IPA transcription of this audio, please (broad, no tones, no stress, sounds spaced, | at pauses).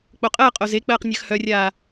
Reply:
k͡p o qʼ ɜ qʼ o z e k͡p ɜː q nʲ ɜ x h œ rʲ aː